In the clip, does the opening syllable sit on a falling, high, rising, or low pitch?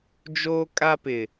high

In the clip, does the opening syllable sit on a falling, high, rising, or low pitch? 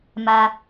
low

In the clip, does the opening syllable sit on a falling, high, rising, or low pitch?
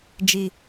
low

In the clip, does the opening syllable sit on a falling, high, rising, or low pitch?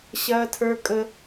high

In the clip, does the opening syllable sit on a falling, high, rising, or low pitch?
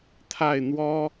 falling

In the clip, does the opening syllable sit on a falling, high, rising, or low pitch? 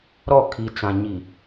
falling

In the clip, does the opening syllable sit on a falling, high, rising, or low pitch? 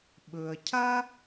low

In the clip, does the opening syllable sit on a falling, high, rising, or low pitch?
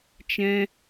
high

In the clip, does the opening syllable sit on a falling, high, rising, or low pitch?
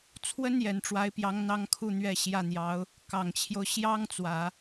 high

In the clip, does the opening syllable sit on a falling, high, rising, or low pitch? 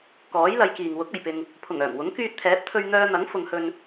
rising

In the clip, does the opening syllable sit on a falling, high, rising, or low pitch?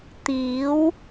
rising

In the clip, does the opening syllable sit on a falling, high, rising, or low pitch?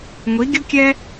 rising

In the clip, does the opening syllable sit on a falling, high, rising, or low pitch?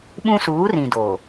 high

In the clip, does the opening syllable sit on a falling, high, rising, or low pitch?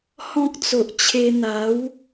high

